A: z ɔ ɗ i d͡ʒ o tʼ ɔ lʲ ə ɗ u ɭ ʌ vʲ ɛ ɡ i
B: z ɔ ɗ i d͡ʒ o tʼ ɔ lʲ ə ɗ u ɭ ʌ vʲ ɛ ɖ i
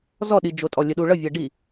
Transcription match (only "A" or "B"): B